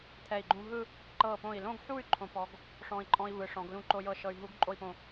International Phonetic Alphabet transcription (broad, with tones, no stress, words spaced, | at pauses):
t̪ʰɛ˧˩i̯ɡ͡ǃũ˧ɦɯ˥˧ | ǃɤ˧˩põ˧˩i̯lõ˥˧ɡħu˥˧y̯ ǃʰõ˩˧pɔ˩˧ɡ | ʂɔ̃˧i̯ǃʼɔ̃˧i̯ vɯ˩˧ʂɔ̃˩˧ɡ lũ˧ǃo˧jɤ˧ ʃɤ˧y̯ɦu˥ɡ ǃʼo˥˧i̯põ˧˩